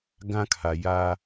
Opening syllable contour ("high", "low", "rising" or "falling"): high